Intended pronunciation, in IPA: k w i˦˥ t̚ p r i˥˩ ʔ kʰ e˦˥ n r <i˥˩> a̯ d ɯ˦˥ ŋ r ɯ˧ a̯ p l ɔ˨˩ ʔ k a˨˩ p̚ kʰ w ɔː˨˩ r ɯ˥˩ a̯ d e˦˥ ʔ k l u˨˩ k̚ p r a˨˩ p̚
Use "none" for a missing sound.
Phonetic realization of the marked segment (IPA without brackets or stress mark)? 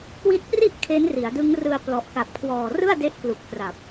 i˩˦